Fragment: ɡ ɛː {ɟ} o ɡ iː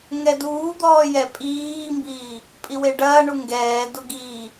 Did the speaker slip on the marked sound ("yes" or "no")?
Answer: yes